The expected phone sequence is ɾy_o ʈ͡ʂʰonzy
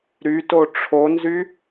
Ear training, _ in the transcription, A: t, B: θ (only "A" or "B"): A